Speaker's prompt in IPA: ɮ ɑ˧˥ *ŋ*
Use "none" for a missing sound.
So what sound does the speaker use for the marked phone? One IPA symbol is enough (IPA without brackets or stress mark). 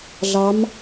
m